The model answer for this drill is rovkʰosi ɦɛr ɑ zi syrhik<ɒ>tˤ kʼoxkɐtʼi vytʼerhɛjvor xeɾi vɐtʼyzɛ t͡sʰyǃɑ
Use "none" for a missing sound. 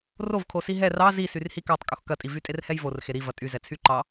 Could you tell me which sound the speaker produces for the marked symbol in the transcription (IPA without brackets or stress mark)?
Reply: ɑ